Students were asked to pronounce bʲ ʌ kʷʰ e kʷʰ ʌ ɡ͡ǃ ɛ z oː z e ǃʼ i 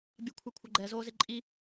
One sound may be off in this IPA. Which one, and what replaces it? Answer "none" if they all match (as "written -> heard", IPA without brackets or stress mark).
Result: none